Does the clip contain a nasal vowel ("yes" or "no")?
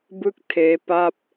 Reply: no